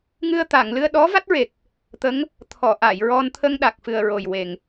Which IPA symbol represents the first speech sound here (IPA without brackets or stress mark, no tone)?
ŋ